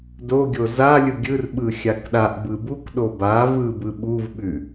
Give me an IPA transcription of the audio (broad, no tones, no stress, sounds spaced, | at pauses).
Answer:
d o ɡʲ o z a lʲ ɯ ɡʲ ɯ r ɓ ɯ xʲ a k ɗ a ʔ b ɯ b u k ɗ o b a v ɯ b ɯ ɓ u v ɓ ʉ